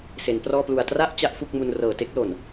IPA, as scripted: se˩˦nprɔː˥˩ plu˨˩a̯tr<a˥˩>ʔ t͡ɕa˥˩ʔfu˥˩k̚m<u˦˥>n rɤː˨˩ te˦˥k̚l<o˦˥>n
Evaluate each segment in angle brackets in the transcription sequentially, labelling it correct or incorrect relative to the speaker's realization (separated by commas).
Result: correct, incorrect, incorrect